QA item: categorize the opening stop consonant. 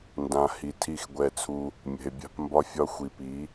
plain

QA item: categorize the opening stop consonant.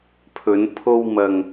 aspirated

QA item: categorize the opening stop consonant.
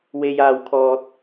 aspirated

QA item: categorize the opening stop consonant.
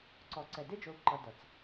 click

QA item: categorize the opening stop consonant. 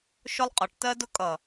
ejective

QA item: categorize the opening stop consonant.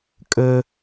ejective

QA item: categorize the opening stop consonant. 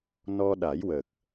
implosive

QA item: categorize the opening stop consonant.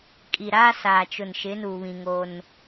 ejective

